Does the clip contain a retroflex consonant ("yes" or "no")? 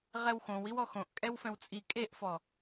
no